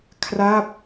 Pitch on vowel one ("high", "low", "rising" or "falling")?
falling